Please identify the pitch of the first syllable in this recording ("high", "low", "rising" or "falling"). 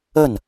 falling